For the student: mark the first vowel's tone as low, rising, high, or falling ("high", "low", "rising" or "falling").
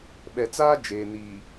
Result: low